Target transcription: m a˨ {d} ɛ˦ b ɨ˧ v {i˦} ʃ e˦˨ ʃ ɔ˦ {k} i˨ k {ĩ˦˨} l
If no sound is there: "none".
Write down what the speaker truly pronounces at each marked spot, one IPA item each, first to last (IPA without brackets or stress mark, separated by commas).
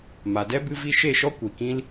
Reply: d, i˧, kʷ, ĩ˦